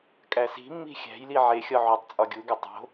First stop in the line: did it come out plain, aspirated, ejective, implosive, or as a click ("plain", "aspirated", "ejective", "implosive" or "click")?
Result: ejective